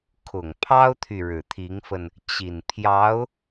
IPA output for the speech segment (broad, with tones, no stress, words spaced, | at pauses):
kʰʊ˨˩ŋpʰɑ˥ʊ̯t̪ʰy˨ ɻɻ̩˨˩t̪ʰi˧˥ŋfə˧n | t͡ɕi˨˩n pʰjɑ˧˥ʊ̯